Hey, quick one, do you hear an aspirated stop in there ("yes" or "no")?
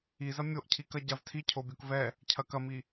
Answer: yes